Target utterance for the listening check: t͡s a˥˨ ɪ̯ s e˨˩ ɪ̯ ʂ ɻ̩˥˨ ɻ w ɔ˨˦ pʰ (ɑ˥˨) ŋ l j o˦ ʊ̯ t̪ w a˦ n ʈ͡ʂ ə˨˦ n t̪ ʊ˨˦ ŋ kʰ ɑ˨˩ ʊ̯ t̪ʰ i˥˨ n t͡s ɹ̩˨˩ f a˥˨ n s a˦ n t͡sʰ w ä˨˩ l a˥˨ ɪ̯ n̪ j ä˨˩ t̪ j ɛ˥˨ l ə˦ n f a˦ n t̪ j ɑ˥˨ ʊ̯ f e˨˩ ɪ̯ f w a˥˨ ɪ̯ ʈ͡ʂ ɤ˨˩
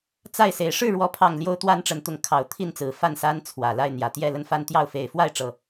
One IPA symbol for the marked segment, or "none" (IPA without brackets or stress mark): ɑ˨˩